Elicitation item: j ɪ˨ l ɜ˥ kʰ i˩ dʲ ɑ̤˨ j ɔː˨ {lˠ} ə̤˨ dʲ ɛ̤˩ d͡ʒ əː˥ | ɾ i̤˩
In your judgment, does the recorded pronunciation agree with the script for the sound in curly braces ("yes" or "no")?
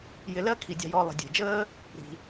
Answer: yes